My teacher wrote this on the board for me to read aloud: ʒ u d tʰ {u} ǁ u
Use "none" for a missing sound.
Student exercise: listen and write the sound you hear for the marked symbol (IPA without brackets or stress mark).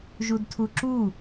u